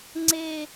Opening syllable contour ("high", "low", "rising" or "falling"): low